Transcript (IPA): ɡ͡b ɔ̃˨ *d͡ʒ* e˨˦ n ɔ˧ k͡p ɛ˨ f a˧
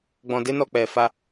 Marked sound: incorrect: d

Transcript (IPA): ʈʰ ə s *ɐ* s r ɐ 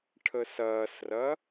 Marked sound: incorrect: ɐː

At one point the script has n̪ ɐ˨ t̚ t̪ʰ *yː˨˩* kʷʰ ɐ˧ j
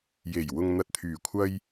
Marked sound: correct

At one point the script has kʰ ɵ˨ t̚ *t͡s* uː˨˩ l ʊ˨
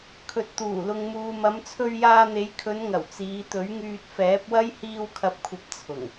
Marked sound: incorrect: t̪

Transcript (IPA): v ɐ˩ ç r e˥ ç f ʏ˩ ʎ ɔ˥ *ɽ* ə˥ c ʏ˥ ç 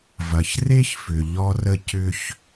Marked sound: incorrect: r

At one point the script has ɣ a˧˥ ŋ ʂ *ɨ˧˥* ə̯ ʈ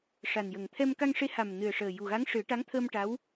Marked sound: incorrect: ɨ˨˩˦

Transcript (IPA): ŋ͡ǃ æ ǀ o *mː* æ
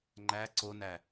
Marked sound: incorrect: n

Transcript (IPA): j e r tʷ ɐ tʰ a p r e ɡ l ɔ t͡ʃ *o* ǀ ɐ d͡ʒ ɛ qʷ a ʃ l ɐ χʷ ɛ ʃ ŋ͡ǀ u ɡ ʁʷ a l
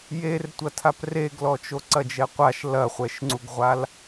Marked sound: correct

